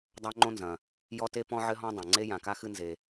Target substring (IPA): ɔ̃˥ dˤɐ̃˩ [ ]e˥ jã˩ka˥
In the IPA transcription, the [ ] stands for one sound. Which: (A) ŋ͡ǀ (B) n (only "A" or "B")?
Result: A